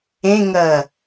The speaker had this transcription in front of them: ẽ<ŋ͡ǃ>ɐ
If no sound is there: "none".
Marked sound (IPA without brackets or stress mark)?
ŋ